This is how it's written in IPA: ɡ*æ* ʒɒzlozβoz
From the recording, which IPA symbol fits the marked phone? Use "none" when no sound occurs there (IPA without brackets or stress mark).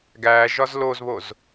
æ